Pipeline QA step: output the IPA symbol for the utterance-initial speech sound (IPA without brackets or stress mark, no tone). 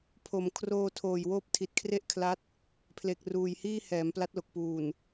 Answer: pʰ